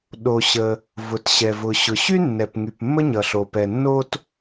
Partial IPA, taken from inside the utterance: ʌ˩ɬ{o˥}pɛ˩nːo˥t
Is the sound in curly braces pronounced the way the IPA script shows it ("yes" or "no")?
no